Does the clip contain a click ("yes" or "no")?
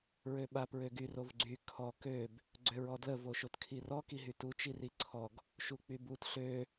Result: yes